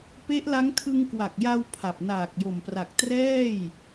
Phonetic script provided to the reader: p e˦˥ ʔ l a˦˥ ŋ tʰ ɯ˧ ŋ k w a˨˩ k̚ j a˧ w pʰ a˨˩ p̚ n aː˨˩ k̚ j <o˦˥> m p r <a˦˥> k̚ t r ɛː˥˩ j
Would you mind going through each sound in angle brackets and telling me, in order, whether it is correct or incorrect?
incorrect, incorrect

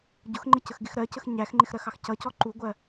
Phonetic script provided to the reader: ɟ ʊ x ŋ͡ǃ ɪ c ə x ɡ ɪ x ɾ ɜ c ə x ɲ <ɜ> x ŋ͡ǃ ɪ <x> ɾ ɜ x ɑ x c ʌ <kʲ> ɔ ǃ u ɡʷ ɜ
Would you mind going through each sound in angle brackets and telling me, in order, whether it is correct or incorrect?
incorrect, correct, incorrect

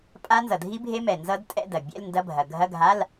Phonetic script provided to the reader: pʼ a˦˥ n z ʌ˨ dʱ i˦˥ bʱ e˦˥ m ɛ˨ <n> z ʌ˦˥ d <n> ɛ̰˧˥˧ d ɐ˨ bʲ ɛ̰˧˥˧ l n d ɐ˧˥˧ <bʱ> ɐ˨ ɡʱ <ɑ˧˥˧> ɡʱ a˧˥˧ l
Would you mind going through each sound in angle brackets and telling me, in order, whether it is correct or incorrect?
correct, incorrect, correct, incorrect

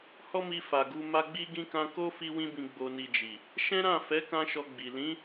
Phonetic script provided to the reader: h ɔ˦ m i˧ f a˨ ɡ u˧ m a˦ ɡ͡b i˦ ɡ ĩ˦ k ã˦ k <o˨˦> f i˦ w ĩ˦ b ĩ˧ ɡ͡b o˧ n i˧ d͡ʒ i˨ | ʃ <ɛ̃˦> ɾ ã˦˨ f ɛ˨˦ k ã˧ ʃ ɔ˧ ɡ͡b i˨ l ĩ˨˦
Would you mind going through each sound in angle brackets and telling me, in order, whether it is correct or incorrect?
incorrect, correct

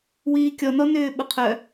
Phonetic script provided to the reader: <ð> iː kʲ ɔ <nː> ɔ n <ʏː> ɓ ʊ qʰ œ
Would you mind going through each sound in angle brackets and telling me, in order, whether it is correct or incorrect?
incorrect, incorrect, correct

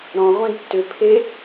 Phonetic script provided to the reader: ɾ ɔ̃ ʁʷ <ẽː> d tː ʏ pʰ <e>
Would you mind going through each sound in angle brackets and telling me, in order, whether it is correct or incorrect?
incorrect, correct

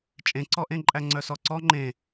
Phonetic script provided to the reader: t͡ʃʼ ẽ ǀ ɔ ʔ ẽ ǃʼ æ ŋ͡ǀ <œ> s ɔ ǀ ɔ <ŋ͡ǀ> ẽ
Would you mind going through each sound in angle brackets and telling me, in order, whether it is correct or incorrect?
correct, incorrect

